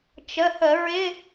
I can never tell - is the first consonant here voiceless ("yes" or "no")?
yes